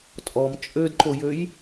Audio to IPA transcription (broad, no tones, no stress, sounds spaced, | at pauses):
tʼ ɔ m t͡ʃʼ ø d ǃ o j ø j